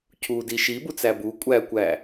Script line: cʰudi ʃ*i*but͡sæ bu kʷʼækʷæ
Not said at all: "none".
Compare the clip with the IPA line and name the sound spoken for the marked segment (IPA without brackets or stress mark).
i